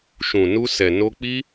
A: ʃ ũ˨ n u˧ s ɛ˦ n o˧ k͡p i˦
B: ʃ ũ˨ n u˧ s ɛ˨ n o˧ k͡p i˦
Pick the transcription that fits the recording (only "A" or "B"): B